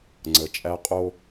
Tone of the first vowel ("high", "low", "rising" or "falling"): low